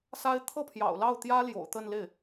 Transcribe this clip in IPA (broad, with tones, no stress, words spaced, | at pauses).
sa˥ɪ̯ t̪ʰɤ˥˩pʰjɑ̰˨˩ʊ̯ lɑ˥˩ʊ̯t̪jä˥ljo̰˨˩ʊ̯ t̪ə˥˧nle˥˩ɪ̯